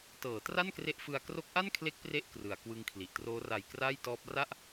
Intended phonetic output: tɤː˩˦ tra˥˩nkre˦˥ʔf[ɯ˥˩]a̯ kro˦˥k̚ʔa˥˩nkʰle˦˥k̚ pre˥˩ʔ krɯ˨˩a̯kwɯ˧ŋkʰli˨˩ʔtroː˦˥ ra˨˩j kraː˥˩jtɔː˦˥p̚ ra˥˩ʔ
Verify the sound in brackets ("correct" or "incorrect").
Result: incorrect